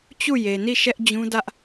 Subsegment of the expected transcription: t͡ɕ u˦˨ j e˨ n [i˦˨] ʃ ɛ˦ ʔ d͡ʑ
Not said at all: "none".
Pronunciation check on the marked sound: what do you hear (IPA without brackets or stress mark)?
i˦˨